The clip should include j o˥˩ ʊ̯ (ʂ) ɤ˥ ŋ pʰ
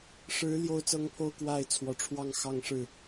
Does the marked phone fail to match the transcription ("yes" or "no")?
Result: yes